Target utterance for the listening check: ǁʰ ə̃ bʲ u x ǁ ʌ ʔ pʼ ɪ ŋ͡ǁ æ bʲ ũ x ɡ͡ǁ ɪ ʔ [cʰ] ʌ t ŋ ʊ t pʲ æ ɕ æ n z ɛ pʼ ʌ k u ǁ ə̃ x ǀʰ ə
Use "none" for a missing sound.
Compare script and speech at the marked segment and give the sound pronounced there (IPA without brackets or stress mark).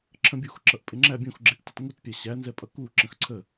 t